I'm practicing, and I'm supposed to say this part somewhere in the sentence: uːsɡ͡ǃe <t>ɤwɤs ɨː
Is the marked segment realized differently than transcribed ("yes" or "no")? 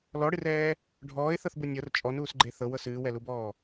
yes